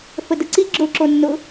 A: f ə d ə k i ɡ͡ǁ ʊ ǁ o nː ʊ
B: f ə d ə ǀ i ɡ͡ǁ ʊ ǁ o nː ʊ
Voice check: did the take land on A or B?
B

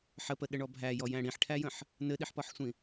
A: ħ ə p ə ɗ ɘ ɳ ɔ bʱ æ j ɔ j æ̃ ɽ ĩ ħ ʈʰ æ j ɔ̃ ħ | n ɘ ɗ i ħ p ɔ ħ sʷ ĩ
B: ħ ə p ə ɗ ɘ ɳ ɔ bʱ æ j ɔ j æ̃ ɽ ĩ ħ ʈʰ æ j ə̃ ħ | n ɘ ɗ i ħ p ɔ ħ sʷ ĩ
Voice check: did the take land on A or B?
B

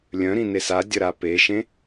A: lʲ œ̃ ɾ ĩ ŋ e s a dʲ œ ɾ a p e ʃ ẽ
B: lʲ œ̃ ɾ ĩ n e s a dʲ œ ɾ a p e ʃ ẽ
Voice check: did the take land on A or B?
B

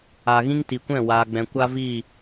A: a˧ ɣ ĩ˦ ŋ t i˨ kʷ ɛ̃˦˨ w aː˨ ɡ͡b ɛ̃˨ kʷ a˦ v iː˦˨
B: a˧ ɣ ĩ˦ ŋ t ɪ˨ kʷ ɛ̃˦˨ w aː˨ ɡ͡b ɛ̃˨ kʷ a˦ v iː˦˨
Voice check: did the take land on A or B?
A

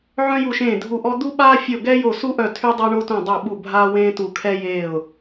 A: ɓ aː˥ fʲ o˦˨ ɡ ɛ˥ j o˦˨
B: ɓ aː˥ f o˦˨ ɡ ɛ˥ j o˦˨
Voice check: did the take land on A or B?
A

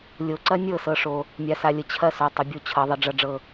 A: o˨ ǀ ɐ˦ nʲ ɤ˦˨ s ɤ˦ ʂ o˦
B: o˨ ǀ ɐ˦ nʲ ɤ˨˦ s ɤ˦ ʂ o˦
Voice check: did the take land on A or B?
A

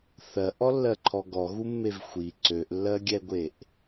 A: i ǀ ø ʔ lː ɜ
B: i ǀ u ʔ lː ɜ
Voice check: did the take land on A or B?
A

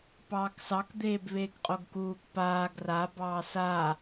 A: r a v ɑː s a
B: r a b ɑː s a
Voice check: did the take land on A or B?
B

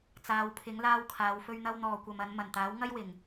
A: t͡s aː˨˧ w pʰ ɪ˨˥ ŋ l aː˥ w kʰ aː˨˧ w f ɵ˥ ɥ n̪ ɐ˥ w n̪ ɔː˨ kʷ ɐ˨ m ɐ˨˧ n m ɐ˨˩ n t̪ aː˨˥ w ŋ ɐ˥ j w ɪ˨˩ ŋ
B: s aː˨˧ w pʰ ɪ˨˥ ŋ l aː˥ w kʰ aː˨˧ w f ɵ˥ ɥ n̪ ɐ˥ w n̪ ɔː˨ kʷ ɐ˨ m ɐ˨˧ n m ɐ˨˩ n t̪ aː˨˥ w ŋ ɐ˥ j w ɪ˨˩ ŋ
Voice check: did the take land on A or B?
A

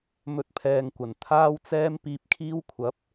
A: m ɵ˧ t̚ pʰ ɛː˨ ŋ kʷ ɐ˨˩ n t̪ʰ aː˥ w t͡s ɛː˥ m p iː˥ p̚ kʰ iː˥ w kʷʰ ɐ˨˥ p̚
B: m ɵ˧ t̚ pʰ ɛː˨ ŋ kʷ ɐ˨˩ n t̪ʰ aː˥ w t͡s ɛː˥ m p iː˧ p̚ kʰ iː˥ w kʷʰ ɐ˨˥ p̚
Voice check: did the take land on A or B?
B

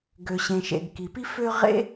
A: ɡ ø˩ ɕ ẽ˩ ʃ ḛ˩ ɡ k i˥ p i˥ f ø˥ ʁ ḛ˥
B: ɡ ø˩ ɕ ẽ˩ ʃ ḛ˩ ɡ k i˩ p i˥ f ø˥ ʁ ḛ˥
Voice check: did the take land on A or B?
B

